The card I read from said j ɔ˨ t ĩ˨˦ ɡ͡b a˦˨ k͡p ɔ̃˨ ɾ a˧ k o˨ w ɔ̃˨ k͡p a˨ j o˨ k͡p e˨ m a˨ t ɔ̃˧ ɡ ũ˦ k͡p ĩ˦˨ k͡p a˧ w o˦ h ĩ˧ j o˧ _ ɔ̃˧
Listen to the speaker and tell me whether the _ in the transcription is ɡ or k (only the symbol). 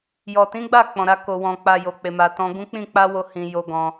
ɡ